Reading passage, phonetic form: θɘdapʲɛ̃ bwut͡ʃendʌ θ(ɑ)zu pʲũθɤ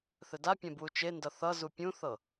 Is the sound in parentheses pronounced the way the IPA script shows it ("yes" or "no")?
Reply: no